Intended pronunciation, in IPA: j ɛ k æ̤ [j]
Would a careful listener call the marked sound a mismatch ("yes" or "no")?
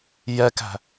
yes